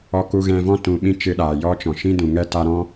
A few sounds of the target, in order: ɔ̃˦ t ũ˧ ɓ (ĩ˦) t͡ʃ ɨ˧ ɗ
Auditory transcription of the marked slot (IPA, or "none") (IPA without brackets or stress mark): ĩ˦